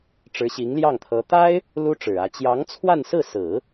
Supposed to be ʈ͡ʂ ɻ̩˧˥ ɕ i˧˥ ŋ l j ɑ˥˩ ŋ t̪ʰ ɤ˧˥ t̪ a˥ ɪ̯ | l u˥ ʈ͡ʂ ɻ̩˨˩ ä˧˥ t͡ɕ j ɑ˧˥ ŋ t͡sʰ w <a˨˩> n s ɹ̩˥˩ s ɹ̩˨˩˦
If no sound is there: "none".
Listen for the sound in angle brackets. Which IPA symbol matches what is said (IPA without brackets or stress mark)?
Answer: a˥˧